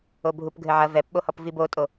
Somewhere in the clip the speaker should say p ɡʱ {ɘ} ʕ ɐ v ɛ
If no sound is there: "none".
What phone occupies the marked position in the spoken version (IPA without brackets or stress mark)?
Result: ɘ